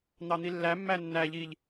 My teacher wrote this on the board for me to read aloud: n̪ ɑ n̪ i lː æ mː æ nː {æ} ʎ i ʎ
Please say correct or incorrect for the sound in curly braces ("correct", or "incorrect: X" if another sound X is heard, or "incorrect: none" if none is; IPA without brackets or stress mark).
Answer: correct